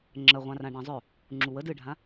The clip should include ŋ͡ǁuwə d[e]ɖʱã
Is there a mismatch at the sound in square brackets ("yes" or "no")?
yes